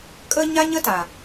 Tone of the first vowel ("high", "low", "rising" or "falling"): high